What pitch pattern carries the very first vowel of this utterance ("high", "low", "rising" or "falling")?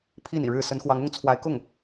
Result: falling